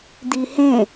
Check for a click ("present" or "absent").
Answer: absent